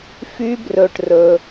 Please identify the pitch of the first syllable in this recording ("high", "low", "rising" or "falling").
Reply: high